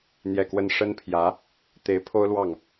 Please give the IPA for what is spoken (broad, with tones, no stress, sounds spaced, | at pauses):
n̪ j ɛ˥˩ k w ə˥ n ʂ ə˥ n pʰ j ä˧˥ | t̪ e˧˥ ɪ̯ pʰ o˥ ʊ̯ l w ɑ˥˩ ŋ